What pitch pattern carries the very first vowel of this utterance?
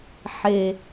low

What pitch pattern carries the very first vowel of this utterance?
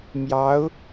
rising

